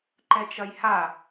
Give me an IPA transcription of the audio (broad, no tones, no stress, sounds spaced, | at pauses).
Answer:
ǃ ɛ t͡ʃ ɐ j h a